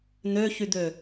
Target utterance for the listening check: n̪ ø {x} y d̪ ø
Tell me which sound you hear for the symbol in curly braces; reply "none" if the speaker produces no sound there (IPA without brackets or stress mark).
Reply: ç